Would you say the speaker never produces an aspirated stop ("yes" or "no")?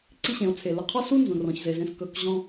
no